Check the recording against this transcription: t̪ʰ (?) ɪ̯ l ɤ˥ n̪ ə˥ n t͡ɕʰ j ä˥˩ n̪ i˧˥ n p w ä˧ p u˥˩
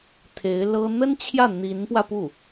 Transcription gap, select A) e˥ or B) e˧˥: B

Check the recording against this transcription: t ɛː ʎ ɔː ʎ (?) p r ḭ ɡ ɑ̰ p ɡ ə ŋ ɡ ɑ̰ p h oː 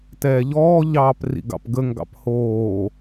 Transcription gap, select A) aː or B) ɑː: B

